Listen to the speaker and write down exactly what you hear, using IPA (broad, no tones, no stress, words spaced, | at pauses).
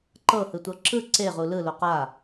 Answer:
ǃɤhɯtʷɤ ǁɯ ǀeʁu lɯlo qa